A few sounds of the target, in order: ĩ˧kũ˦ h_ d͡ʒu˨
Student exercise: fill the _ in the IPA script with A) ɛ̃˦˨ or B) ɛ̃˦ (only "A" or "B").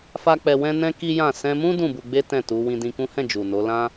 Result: A